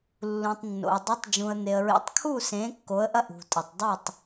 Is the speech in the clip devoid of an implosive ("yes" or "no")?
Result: yes